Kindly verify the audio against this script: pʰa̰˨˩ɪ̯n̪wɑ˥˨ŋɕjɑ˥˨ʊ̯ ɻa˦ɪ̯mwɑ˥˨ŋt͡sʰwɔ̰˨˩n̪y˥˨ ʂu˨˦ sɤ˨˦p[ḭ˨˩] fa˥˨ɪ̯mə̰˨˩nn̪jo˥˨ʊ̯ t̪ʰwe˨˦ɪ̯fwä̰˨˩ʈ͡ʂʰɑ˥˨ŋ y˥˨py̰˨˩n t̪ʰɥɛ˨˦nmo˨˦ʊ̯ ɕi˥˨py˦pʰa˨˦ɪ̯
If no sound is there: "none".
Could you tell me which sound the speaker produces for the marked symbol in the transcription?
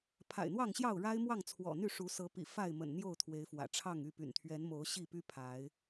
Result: ḭ˨˩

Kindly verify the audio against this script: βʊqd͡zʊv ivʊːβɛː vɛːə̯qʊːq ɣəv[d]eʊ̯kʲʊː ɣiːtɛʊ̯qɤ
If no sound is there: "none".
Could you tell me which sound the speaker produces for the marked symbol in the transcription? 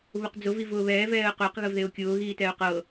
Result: ð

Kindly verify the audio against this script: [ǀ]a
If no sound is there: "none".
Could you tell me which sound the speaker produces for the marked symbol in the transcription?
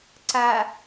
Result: ǀ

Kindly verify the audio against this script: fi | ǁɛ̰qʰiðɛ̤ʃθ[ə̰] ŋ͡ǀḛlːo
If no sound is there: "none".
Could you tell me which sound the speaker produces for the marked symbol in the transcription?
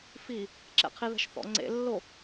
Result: ɔ̰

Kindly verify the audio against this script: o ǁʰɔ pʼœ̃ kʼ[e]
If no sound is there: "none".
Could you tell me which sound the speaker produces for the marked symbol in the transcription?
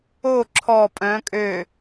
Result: ø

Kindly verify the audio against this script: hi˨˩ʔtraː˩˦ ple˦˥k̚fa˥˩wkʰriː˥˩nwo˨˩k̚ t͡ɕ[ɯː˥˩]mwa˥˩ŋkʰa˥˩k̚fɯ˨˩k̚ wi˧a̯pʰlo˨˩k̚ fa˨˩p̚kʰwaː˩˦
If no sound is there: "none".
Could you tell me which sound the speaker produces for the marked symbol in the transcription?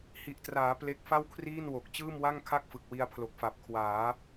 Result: ɯː˥˩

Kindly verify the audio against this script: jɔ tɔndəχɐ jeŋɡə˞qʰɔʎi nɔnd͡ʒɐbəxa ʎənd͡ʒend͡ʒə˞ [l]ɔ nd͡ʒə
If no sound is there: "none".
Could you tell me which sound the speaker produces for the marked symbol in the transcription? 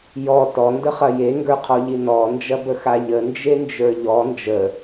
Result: ʎ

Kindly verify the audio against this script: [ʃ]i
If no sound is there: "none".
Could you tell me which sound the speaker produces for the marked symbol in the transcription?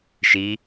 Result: ʃ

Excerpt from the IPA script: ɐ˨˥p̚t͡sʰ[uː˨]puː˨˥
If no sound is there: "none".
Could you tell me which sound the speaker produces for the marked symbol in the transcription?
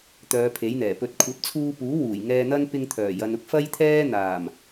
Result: uː˧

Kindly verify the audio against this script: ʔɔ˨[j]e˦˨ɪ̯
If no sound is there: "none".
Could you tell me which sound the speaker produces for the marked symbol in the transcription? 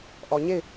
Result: ɲ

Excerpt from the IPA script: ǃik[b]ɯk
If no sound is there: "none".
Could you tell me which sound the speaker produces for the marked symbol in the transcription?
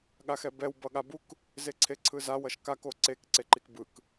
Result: b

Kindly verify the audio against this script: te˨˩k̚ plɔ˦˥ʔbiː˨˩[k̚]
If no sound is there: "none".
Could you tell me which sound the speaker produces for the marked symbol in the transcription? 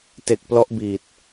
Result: t̚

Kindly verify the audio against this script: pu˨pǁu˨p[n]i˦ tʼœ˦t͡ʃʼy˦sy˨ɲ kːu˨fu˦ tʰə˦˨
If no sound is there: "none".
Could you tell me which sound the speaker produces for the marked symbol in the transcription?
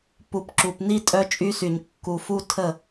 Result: n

